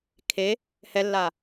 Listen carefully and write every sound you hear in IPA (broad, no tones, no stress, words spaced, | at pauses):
kʰe | hɛlːa